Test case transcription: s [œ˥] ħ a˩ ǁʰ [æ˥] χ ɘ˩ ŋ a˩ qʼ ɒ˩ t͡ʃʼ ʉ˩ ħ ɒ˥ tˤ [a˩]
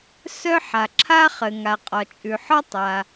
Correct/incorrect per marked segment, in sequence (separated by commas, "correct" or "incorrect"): correct, incorrect, correct